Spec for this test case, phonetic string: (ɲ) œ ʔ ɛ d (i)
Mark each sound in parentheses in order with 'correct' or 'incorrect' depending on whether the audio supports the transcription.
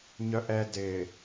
correct, incorrect: ɪ

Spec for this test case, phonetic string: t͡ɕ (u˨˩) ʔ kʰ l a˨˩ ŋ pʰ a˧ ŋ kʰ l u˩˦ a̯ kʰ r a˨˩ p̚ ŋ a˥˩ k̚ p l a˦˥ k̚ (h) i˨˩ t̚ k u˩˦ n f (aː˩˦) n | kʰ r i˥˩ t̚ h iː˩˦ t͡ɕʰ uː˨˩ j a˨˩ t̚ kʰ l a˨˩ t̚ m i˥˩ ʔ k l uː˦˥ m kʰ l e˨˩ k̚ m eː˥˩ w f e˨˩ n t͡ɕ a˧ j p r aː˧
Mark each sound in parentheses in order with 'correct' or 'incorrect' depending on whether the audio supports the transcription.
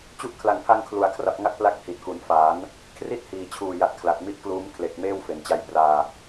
incorrect: u˦˥, correct, correct

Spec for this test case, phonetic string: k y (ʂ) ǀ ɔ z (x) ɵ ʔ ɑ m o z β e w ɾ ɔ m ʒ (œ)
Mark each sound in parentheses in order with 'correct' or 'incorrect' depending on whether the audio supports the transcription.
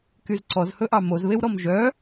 incorrect: z, incorrect: h, correct

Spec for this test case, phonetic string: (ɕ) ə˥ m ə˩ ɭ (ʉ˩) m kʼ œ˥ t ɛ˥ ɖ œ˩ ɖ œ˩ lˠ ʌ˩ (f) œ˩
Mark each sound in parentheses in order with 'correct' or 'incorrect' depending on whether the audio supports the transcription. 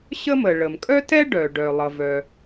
correct, incorrect: ə˩, incorrect: v

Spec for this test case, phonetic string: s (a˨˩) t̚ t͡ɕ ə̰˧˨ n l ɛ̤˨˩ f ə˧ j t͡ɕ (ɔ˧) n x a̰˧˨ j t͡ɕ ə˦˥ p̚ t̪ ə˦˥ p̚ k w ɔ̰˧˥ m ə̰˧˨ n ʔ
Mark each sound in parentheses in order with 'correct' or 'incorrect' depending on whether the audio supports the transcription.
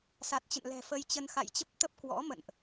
correct, incorrect: ə˧

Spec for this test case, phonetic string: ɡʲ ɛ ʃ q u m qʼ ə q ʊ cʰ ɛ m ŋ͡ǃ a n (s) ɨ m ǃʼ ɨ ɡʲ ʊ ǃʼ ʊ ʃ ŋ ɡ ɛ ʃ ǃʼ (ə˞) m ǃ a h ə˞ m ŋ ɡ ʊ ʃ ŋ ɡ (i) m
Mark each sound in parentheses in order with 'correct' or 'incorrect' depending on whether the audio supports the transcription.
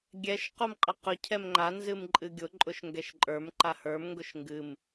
incorrect: z, correct, incorrect: ɨ

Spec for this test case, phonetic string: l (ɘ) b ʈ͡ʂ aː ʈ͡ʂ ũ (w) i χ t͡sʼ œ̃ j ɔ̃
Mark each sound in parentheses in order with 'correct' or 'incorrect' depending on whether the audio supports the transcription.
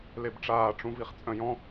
incorrect: e, incorrect: v

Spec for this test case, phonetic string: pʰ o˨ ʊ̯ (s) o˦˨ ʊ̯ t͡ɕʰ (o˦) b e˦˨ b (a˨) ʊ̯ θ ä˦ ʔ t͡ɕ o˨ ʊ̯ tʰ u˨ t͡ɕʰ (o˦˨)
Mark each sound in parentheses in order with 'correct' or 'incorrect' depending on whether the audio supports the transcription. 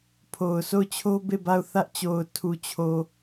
correct, correct, incorrect: a˦˨, incorrect: o˨

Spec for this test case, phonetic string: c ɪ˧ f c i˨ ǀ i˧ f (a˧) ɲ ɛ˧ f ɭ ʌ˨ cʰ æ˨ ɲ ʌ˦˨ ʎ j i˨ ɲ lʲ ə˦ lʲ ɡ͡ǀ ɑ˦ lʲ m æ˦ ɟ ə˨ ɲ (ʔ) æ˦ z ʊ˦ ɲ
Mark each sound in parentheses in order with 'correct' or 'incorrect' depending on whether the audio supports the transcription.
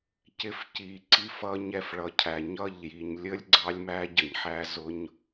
incorrect: ʌ˧, incorrect: ħ

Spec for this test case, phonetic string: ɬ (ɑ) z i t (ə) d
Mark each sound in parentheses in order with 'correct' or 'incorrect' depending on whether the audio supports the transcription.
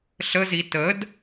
incorrect: ə, correct

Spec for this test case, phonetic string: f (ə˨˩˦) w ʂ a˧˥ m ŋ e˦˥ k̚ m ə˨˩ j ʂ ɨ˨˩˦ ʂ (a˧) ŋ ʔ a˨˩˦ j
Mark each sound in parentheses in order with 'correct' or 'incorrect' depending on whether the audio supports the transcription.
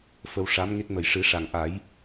incorrect: ə˧, incorrect: a˨˩

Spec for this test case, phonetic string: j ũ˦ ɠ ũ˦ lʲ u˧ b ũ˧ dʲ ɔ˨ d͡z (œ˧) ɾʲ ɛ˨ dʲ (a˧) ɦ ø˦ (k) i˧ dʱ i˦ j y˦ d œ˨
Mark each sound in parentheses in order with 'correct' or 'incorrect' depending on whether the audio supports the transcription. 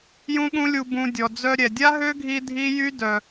correct, incorrect: a˦, incorrect: ɡʱ

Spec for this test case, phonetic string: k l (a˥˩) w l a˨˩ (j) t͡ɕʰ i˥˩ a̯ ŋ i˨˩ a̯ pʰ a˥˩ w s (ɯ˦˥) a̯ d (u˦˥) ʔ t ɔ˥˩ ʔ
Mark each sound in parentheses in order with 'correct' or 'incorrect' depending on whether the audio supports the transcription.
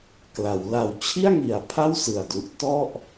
incorrect: a˩˦, incorrect: w, incorrect: ɯ˨˩, correct

